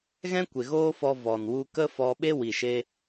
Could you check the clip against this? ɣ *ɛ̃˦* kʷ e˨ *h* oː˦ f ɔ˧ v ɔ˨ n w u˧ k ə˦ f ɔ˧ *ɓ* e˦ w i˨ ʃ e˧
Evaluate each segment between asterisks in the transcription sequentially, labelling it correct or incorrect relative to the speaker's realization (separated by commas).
correct, incorrect, correct